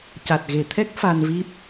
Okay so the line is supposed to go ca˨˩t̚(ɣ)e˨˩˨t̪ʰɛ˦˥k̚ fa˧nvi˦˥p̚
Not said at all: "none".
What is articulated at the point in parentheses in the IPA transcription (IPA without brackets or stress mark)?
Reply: ɣ